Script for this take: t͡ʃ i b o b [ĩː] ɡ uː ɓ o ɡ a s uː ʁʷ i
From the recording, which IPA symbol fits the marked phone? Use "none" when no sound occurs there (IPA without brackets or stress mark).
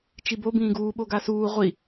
ĩː